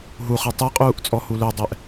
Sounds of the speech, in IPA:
ɦuχɨ tˤeqʼuːʔ t͡sʼɔhulœdˤɛʔ

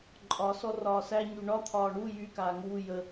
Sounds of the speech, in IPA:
ǃʼɒ sɔrɒːsæ ɲyɳɒ t̪ʰɒːɳu jy kaːŋuː jə

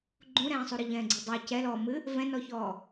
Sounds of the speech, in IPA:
ɡ͡ǃũɾɛ̃ːsˤuɾɨ ʎɛ̃ːɡ͡ǀedˤe cɛlɔːmɨ | vɛ̃nɔçɔː

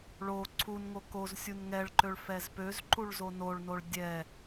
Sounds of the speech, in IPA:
ɭo ǀʰunŋo koz sʲunŋɛɭǃøɭ fɛzpøzǃuɭ zonoɭnoɭ dʲɛ

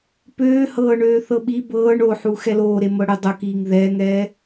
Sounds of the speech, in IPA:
pøː hɤːɳøːθɤɓi bɤːɳ oħu xɛloːɾe mɤɽʏ dˤʊkiːŋ ðɛːŋɛː

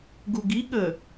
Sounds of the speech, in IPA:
ɡuɡiɠə

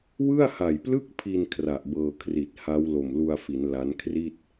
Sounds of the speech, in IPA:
wɯ˥˩a̯ha˨˩jplɯ˥˩k̚pʰi˧n kʰra˨˩ʔbɤː˧kʰri˨˩t̚ ha˦˥wlo˨˩mlu˧a̯fi˩˦n la˦˥nkʰri˥˩t̚

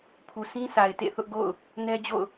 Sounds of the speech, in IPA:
pʰu˨sʰĩ˦sa˨ɪ̯ tḛ˦˨θʊ˦ʔɡo̰˦˨ʊ̯ | nɛ˦d͡ʑo̰˦˨ʊ̯

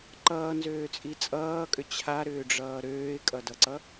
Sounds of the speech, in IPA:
ǃʌːnzøːt͡sʼi t͡sʼʌːkʼʏ t͡ɕʰaɾʏːɖ͡ʐʌː ɾøːɪ̯kʼʌdʌǀʌ

